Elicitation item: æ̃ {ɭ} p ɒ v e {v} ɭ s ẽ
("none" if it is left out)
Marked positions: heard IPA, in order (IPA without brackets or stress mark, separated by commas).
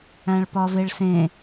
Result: ɭ, none